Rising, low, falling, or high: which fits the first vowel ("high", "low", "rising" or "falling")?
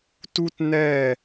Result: high